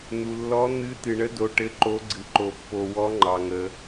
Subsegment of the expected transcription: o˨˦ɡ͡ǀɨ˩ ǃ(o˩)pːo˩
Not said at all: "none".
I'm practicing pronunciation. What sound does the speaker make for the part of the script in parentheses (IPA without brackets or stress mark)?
o˩